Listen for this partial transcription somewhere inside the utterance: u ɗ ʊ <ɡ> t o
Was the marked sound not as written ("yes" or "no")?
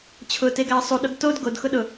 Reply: no